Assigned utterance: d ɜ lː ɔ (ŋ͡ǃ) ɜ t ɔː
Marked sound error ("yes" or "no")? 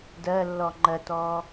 no